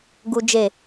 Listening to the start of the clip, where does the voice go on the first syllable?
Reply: high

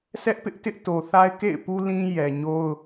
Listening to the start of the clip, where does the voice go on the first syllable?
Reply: high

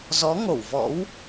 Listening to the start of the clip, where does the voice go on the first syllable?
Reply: rising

